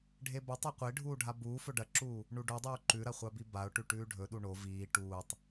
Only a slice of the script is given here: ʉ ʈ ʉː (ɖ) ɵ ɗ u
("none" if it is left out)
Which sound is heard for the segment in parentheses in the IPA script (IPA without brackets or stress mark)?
ɖʱ